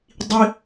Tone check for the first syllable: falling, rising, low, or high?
high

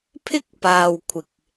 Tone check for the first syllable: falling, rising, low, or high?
high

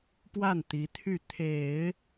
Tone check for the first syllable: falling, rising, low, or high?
falling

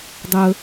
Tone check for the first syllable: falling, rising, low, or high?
high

